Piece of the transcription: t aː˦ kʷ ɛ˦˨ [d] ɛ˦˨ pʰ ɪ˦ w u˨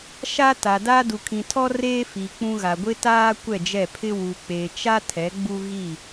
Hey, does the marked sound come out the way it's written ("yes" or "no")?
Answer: no